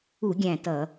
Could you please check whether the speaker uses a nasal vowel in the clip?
yes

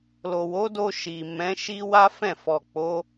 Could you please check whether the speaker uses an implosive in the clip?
no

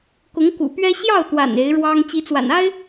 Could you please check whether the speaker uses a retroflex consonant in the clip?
yes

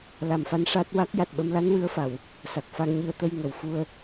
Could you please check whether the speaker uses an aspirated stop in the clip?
no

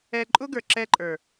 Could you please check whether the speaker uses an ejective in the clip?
yes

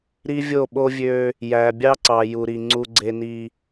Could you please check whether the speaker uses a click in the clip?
yes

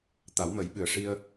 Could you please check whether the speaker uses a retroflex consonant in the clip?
yes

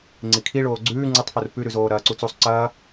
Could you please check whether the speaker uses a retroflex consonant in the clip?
yes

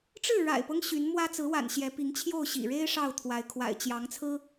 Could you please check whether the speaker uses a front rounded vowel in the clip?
yes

